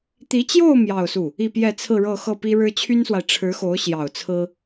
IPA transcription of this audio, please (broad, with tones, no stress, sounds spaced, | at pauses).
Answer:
t̪ i˧˥ t͡ɕ j o˥˧ ʊ̯ m j ɑ˥˧ ʊ̯ s u˥˩ | i˥˧ p j ɛ˥˧ t͡sʰ ɹ̩˥˧ ɻ ɤ˥˧ x ɤ˥˩ p i˥ ɻ ɻ̩˥ t͡ɕʰ y˥ n s w a˨ ɪ̯ ʈ͡ʂʰ ɻ̩˧˥ x o˧˥ ʊ̯ ɕ j ɑ˨˩ ʊ̯ t͡sʰ ɹ̩˥